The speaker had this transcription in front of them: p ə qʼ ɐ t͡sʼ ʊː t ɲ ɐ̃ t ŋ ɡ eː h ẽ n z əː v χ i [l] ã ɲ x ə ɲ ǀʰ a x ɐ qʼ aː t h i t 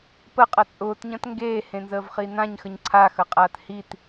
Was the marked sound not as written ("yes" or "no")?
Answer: yes